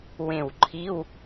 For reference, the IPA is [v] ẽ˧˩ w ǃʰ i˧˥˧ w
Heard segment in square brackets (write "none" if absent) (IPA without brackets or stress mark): w